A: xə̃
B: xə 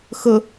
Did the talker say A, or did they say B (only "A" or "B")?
B